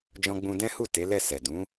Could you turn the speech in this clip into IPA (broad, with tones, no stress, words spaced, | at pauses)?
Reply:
d͡ʒɔ̃˧ɡ͡bũ˧dɛ̃˦hu˦˨ te˨˦lɛ˦˨sɛ˨ dũ˨˦